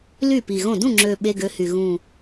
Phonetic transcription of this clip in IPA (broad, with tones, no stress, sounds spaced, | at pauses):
l y˥˩ p i˨˩ ɣ õ˥˩ d ũ˥˩ ŋ͡ǁ ø˨˩ ɓ e˧˥˧ ɡ ø˨˥ h y˨˩ ɣ ũ˨˩